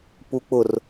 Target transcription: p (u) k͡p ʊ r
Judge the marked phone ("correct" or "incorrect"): correct